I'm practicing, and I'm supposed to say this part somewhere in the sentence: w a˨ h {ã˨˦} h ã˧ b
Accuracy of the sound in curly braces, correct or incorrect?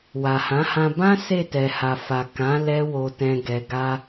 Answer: correct